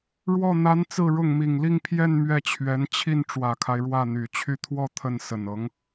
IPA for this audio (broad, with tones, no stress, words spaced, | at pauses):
ɻwɔ˥˩ n̪a˧˥n t͡sɹ̩˥˧ɻʊ˥˩ŋ mi˨˩ŋli˥˧ŋ pʰjɛ˥˧n mɥɛ˥˩t͡ɕʰɥɛ˧˥n t͡ɕʰi˥˩n ʈ͡ʂwä˨˩kʰa˦ɪ̯ ɻwä˥˩n̪y˨˩t͡ɕʰy˥˧ t̪ʰwɔ˥˧ t̪ʰə˥˩nsə˨˩nɤ˧˥ŋ